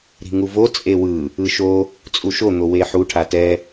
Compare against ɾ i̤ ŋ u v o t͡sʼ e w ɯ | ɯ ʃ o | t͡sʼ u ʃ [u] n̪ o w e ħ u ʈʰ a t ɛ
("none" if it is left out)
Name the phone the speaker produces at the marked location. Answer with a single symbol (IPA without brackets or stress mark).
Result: o